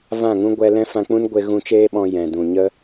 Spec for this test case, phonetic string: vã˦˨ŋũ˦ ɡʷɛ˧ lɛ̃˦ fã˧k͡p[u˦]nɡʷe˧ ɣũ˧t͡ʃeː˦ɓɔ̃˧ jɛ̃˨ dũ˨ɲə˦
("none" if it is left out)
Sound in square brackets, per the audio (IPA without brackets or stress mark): ũ˦